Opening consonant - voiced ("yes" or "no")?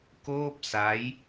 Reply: no